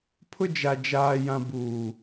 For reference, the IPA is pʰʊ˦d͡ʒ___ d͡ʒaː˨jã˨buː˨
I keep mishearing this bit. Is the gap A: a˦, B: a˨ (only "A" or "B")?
B